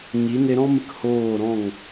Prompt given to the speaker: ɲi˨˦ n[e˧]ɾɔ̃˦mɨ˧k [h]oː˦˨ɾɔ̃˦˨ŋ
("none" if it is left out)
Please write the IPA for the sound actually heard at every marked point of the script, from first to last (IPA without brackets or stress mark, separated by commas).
e˧, h